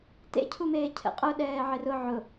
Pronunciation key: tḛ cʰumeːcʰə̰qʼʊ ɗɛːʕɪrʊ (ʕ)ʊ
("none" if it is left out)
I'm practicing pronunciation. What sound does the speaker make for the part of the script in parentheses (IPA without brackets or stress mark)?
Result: ʕ